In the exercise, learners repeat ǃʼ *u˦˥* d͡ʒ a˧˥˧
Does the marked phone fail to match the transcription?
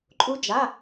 no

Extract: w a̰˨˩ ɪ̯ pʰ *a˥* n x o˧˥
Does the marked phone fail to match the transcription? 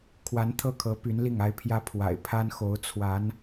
no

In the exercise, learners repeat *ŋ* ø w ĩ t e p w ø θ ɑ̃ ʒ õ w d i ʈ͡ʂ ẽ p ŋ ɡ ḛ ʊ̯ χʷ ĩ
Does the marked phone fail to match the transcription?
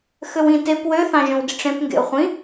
yes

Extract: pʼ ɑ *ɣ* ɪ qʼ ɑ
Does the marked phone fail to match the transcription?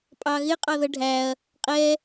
no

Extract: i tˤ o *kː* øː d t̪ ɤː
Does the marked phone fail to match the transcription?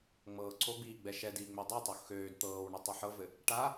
yes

